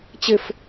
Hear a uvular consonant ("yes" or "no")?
no